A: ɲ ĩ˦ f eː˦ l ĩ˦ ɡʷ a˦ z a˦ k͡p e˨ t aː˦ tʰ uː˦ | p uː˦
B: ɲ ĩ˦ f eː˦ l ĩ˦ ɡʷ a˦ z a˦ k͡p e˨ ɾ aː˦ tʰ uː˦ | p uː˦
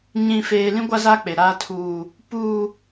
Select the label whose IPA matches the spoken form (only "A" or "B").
B